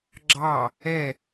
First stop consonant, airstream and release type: click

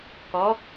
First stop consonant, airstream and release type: plain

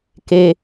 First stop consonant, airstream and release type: plain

